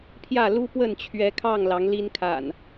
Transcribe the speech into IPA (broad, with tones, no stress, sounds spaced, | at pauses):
pʰ j ä˥˨ l u˦ p w ə˥˨ n t͡ɕʰ ɥ ɛ˨˦ kʰ ɑ˥˨ ŋ l ɑ˨˦ ŋ l i˦ n kʰ a̰˨˩ n